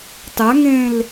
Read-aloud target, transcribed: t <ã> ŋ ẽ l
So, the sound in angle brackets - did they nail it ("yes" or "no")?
no